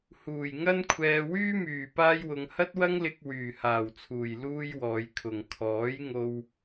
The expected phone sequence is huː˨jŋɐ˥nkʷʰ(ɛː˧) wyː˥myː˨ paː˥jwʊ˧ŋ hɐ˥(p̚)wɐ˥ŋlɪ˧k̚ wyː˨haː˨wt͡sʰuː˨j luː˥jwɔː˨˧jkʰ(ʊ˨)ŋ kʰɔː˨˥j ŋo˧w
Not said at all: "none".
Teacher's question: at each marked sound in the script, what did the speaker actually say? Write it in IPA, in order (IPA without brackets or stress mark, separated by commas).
ɛː˧, t̚, ʊ˨